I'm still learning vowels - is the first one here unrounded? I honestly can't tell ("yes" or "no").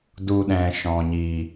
no